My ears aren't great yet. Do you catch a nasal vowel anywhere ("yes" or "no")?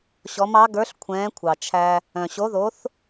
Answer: yes